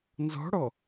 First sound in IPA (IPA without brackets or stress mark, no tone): n